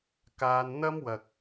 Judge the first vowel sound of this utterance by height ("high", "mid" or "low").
low